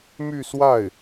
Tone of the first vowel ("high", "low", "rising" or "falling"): falling